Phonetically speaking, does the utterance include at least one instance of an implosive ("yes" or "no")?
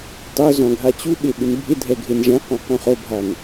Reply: yes